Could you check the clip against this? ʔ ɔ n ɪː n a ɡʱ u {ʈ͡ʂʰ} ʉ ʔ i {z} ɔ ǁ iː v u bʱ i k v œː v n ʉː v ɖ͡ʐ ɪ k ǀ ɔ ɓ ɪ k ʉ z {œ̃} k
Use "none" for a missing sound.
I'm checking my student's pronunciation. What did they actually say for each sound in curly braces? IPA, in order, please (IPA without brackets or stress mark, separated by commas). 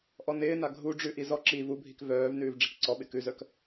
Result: ɖ͡ʐ, z, œ